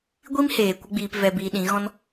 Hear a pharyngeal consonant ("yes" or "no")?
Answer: no